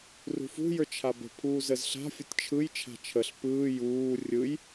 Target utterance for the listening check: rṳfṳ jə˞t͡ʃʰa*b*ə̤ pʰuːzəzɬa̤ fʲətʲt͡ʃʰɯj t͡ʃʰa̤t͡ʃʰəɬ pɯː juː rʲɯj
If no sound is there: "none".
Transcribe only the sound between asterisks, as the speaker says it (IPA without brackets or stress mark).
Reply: b